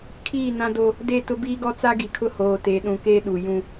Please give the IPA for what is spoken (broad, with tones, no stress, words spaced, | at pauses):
kʰiː˦˨nã˦do˦ | de˦˨tʊ˦ biː˦ɡɔ˦t͡sa˦ ɡi˨kʰʊ˦ hoː˨te˨ɗũ˨ keː˦ɗuː˨jũ˦